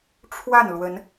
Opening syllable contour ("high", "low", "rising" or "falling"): falling